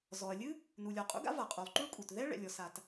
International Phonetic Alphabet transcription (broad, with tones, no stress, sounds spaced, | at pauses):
z ɔ˩ ɐ̯ lʲ ɨ˥ | n u˩ lʲ ɔ˩ qʼ ṵ˥ ɡ a̰˥ v a˩ qʼ u˩ lˠ ǃ u˥ ɭ kʼ u˩ t ð ɛ˥ ɭ ɛ̰˩ lʲ ɔ˩ s a˩ t